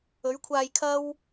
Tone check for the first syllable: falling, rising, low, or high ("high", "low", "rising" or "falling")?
rising